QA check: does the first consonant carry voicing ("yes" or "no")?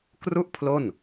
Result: no